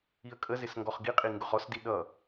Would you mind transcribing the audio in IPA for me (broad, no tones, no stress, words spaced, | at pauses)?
iə̯kʼəzɪs ŋɡɔχɡiqʼi ŋɡʊχɔsdi ɗʌ